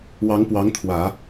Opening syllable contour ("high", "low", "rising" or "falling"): rising